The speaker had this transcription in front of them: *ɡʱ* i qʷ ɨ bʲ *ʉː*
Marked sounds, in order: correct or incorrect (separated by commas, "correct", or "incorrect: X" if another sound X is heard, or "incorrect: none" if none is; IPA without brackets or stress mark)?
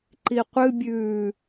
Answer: incorrect: ǃ, correct